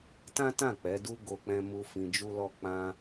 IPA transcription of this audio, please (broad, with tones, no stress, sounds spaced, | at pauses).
t ã˦ t ã˦˨ k͡p ɛ˨˦ d u˦ ɡ o˧ k͡p ɛ̃˧ m u˧ f ĩ˧ d͡ʒ u˦ l ɔ˦ k͡p ã˧